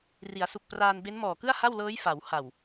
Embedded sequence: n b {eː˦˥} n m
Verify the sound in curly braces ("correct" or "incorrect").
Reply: incorrect